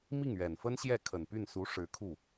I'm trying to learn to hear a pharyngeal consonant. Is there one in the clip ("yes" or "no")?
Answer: no